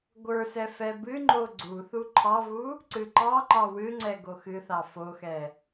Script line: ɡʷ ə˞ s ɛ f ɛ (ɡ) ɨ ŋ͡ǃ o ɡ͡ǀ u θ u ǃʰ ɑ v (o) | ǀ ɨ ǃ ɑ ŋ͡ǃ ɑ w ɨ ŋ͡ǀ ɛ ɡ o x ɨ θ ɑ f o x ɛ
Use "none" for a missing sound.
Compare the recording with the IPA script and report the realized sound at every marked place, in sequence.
b, u

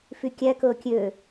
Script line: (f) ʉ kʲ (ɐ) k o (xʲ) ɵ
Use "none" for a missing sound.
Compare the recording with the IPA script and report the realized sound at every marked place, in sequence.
f, ɐ, kʲ

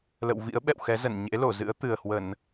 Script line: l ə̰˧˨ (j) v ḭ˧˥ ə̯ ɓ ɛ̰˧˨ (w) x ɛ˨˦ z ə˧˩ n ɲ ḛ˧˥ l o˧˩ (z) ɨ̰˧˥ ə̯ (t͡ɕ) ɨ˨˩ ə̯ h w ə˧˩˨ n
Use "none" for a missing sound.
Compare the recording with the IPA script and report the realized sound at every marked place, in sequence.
w, w, z, t̪

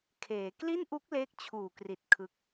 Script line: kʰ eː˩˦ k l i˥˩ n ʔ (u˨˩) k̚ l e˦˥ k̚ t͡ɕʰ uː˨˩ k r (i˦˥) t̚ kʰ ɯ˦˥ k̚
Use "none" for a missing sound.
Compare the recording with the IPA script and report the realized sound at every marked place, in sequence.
u˦˥, i˨˩

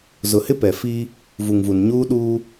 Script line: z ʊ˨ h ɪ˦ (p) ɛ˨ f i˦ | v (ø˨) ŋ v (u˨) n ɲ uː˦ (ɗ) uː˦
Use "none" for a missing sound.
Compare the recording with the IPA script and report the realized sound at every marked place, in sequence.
p, u˨, u˨, ɗ

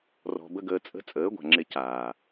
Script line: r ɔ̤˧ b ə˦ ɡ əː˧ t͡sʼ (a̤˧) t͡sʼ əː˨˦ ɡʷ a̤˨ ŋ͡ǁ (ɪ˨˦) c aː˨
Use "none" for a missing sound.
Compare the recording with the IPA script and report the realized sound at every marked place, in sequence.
ə̤˧, ɪ˧

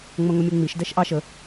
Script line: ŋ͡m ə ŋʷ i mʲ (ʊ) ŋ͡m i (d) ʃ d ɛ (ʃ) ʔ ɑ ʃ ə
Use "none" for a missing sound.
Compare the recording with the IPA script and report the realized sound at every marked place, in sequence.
u, none, ʃ

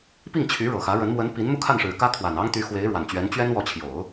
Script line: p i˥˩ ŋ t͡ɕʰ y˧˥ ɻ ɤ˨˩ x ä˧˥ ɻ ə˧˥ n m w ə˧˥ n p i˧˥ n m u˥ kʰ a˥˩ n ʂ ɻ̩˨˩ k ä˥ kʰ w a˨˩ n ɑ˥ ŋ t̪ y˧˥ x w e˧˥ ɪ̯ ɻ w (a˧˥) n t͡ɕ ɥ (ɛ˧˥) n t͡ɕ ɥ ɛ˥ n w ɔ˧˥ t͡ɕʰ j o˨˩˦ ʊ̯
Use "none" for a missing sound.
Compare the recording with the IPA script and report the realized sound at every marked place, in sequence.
a˨˩, ɛ˧˥

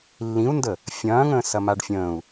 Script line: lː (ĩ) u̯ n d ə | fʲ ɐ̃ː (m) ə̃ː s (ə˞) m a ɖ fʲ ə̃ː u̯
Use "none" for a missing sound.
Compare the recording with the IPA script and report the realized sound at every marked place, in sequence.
ĩ, ŋ, ɐ

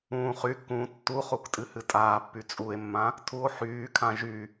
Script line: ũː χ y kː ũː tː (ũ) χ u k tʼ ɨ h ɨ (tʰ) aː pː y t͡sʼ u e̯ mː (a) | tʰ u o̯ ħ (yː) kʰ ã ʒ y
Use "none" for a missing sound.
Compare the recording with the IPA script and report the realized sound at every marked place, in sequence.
u, tʼ, ã, yː

